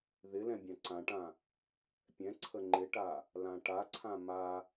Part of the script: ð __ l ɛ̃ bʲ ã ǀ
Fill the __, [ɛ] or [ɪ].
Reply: ɪ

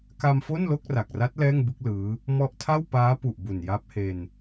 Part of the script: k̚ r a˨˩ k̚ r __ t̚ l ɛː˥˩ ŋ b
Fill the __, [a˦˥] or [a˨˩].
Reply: a˦˥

